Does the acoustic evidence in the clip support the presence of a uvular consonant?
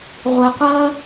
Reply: yes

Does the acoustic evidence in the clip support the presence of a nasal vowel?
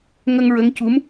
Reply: no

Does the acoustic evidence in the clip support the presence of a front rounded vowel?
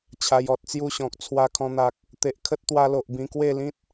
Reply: no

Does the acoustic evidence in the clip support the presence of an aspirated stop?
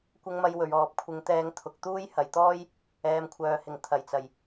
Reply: yes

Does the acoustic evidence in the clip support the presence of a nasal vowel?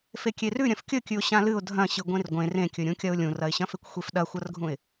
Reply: yes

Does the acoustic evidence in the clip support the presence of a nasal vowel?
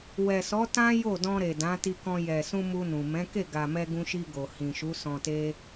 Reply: yes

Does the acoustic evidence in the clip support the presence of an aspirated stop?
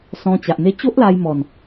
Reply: no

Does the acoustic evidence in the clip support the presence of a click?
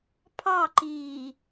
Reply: yes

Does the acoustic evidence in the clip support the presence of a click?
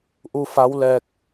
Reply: no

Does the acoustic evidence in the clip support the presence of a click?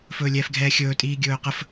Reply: no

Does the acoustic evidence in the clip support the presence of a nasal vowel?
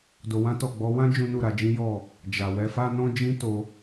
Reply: yes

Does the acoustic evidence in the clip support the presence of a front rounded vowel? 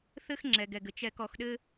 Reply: no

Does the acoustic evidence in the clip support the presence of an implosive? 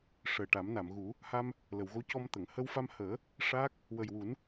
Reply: no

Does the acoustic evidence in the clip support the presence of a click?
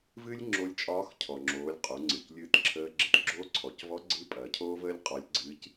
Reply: yes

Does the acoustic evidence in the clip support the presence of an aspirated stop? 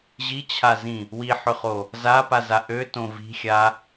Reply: yes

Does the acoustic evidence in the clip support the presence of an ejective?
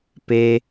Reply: no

